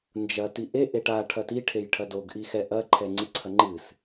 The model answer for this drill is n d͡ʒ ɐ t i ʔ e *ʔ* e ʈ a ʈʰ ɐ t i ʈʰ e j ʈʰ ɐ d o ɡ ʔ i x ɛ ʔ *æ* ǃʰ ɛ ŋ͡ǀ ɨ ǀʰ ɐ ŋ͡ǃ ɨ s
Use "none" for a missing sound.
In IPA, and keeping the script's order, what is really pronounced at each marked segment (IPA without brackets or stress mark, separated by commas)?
ʔ, ɐ